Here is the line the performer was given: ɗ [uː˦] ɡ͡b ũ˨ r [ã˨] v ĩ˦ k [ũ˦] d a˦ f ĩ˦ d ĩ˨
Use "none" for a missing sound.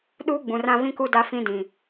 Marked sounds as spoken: uː˦, ã˦, u˦

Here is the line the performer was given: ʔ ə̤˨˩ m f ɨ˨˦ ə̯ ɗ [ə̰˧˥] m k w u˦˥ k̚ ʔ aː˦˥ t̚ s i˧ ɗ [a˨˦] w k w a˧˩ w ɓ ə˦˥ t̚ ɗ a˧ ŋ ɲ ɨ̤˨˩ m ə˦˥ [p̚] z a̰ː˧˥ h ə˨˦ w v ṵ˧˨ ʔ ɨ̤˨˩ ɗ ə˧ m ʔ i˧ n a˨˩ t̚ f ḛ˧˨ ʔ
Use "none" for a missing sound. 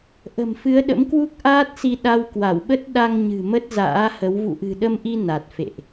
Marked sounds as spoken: ə̰˧˥, a˧, t̚

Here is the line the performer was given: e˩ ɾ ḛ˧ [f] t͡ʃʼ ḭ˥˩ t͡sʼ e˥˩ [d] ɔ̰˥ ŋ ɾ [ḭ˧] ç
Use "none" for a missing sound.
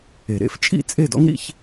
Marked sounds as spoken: f, d, ḭ˧

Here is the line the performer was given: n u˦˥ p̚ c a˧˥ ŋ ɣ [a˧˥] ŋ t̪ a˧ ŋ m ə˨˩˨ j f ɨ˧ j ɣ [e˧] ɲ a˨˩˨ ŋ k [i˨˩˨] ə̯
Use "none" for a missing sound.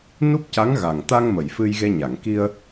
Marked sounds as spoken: a˨˩, e˧, i˧

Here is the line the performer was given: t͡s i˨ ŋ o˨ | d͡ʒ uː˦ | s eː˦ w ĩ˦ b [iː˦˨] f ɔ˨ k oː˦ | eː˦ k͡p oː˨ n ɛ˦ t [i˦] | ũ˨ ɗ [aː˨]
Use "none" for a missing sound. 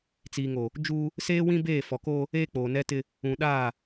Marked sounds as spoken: eː˦˨, ɪ˦, aː˦˨

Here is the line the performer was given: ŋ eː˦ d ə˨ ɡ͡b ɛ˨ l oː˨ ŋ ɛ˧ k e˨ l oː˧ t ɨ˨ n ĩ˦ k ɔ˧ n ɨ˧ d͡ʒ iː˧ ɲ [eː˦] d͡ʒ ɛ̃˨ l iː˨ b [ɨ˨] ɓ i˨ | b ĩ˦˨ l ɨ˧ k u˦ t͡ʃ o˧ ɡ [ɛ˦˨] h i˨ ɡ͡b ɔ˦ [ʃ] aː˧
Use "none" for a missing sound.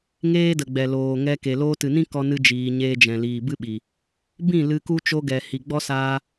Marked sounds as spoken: eː˦, ɨ˦, ɛ˨, s

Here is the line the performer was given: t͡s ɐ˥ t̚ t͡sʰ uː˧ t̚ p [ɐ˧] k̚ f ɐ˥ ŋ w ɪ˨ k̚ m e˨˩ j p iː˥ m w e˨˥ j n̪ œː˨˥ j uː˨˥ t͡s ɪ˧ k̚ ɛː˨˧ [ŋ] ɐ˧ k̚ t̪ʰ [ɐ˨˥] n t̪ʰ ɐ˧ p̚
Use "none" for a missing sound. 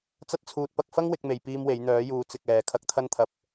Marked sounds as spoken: ɐ˧, kʰ, ɐ˥

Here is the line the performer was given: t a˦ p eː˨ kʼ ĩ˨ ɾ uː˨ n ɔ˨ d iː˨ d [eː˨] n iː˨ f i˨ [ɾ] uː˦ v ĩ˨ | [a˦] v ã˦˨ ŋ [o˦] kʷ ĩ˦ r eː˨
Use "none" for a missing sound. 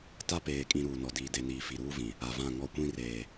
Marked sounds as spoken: e˨, ɾ, a˨, ɔ˦

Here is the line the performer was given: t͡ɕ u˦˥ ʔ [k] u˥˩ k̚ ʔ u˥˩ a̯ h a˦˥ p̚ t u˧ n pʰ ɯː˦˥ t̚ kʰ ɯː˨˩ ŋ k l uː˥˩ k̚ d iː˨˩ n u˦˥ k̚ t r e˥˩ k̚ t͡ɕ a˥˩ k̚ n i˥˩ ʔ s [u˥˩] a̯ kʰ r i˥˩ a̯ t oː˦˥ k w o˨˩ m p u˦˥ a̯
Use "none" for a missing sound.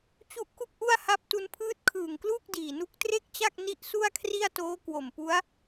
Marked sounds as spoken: k, u˥˩

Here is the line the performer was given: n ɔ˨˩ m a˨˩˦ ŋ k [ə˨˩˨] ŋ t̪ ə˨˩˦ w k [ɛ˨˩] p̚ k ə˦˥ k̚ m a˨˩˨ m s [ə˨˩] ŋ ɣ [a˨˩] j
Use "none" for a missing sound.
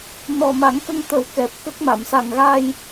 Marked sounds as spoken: ə˧, ɛ˨˩, a˨˩, a˧

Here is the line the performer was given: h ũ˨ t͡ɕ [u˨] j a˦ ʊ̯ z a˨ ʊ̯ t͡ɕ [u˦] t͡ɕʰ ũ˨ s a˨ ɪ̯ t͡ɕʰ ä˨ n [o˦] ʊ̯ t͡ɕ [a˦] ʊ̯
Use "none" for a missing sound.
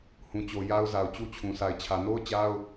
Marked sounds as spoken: o˨, u˦, o˦, a˦

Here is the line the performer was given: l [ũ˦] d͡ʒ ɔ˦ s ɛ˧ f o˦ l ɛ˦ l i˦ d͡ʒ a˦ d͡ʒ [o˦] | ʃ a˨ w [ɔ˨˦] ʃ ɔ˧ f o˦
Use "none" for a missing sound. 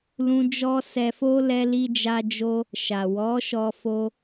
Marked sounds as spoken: ũ˦, o˦, ɔ˨˦

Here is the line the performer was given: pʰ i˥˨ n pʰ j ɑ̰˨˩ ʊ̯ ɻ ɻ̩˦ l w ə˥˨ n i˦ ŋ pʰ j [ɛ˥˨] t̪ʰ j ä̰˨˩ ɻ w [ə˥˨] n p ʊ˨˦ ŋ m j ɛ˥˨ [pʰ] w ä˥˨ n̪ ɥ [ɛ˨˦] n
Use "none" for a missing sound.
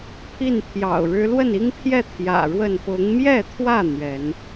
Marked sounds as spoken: ɛ˥˨, ə˥˨, t̪ʰ, ɛ˨˦

